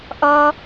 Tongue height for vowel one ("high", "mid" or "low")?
mid